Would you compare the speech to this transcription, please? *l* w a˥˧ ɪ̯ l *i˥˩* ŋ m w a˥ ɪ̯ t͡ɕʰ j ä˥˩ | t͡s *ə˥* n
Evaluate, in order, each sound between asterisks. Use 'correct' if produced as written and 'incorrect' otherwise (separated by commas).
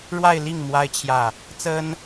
incorrect, correct, correct